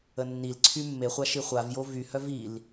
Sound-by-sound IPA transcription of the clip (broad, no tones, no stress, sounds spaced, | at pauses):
ə nː i l ǀʰ y mː e χʷ a ʃ i χʷ a v j o v y h œ v i l